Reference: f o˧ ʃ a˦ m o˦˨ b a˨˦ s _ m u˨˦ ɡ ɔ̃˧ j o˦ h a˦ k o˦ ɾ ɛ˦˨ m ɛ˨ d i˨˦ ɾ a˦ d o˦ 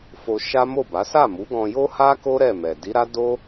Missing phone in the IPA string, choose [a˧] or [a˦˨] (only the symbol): a˦˨